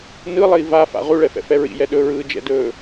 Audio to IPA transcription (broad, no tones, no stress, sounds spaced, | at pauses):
n ɯ lˠ ɘ i̯ v a f a̰ ʁ u ɭ ɛ f ɛ̰ f ɛ ɹ ḭ j ɛ ɗ ɵ ɹ ɯː d͡ʒ ɛ̰ d ɵː